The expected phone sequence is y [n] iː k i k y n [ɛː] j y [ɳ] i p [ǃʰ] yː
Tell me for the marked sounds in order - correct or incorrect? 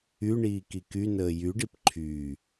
incorrect, incorrect, incorrect, correct

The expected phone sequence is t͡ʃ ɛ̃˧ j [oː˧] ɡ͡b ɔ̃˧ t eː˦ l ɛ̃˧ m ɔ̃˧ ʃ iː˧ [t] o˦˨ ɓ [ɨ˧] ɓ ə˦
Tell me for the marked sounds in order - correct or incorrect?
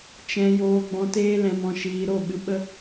correct, incorrect, correct

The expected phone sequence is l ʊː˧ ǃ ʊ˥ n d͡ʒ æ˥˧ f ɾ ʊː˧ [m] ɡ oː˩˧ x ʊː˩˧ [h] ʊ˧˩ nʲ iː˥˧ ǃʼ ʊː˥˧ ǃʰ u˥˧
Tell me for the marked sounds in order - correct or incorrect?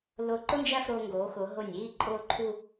incorrect, incorrect

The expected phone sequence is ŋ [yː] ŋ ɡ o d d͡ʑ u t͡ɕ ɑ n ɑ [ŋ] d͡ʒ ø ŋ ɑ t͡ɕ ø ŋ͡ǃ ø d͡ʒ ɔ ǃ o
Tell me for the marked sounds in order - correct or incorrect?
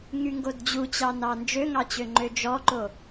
incorrect, incorrect

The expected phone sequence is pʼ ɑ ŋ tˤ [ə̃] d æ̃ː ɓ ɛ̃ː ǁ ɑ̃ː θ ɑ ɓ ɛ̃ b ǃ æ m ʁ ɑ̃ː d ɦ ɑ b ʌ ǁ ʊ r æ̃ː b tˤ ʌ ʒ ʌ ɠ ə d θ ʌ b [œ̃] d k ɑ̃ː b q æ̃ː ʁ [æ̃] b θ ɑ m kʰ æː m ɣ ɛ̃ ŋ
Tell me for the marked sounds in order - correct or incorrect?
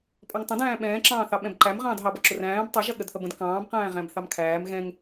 correct, incorrect, correct

